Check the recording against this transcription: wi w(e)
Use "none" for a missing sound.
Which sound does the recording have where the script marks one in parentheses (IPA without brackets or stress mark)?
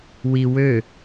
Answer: ø